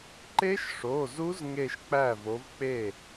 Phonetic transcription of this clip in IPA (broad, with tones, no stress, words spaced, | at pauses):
ǃe˦˥ʃ ʂo˩˧˩zu˦˥z ŋe˥˧ʃk͡pæ˥˩ vo˨˥v k͡pe˥˩